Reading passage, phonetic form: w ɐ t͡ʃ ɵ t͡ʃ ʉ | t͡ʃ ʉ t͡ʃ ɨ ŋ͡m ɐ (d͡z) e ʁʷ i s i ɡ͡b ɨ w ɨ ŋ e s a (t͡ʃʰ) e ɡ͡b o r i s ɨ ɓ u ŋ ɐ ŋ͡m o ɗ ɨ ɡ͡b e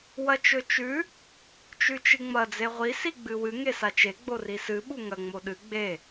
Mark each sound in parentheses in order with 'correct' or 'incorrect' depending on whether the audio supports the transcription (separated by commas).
correct, incorrect